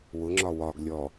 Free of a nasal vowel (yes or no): yes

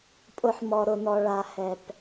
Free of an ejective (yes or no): no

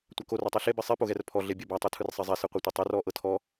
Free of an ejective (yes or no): yes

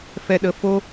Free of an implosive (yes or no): no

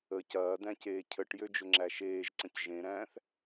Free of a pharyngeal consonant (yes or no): yes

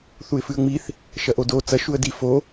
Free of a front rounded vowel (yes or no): yes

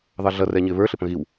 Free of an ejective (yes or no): yes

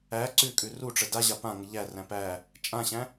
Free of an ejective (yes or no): no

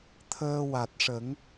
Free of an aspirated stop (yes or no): no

